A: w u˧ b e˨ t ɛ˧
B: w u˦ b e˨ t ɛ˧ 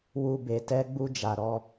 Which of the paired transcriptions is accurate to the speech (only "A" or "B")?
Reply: A